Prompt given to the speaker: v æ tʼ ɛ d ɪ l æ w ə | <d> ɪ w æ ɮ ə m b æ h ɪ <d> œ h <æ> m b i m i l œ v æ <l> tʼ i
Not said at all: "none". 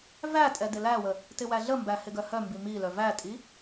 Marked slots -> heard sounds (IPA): t, ɡ, œ, none

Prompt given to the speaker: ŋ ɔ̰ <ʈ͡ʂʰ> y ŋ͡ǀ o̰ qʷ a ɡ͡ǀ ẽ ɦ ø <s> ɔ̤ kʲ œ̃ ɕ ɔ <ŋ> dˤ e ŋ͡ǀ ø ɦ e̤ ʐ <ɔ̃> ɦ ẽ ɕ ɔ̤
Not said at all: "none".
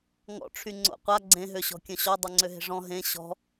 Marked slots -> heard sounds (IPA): ʈ͡ʂʰ, ɕ, none, ɔ̃

